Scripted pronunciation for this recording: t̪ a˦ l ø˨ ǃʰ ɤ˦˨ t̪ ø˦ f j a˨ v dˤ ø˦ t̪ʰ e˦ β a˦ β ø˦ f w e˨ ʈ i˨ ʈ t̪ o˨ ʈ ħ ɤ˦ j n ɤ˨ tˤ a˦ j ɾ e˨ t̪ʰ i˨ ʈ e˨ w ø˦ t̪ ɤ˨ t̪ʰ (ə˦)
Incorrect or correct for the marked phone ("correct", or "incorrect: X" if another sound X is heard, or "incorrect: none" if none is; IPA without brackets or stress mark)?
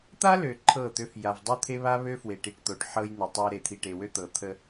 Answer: correct